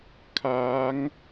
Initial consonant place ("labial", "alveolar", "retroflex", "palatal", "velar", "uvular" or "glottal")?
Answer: velar